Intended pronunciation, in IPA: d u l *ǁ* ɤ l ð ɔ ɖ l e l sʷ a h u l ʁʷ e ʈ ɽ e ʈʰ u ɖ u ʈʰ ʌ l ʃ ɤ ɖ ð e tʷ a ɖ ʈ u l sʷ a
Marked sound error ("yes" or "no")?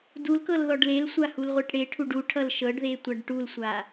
yes